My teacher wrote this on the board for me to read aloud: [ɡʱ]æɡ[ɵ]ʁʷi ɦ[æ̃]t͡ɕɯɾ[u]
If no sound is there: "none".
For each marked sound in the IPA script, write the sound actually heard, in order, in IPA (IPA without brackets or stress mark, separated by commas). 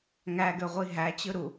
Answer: ŋ, ø, æ, u